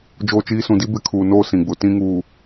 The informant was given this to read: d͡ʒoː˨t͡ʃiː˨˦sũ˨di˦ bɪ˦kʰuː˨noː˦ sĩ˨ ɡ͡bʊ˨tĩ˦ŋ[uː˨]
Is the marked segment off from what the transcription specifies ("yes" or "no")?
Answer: no